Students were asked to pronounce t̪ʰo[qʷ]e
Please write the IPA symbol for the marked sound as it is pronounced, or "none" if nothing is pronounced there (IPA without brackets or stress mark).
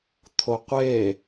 qʷ